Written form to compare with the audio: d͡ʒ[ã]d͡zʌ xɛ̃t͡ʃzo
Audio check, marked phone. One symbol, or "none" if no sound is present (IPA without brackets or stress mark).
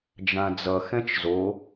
ã